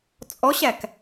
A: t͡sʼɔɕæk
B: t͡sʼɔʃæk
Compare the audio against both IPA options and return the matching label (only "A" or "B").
A